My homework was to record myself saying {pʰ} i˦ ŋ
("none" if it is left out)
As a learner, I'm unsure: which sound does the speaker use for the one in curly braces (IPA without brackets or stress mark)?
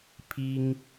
pʰ